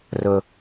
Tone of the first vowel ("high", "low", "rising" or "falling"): high